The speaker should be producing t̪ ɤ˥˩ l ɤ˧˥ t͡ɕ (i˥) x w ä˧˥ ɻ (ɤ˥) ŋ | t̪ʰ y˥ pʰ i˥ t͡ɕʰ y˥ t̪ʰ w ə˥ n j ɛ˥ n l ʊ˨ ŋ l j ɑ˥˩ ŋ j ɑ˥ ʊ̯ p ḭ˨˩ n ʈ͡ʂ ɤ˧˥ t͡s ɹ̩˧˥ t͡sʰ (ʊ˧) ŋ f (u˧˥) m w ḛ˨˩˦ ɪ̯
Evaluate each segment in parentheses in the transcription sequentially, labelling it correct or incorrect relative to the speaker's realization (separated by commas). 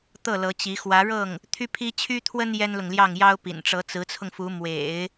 incorrect, incorrect, correct, correct